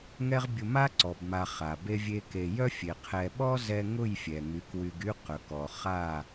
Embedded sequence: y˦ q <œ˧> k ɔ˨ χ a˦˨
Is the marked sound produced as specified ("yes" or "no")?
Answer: no